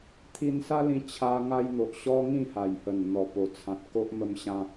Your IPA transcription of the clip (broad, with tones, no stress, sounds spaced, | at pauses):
t̪ʰ i˧ n s a˦ l ĩ˧ t͡ɕʰ a˧ ŋ a˧ j n̪ o˨ ʔ ɕ ɔ˦ ŋ ĩ˥˧ h a˨˩ j h ə˨˩ n n̪ ɔ˨˩ p o˨˩ t͡sʰ ã˨ t̚ k o˦ ʔ m ə˧ m ɕ ã˧